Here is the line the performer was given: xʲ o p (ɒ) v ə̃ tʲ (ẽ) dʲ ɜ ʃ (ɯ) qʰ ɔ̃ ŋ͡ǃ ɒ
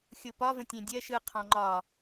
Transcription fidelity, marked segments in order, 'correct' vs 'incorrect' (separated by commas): correct, correct, correct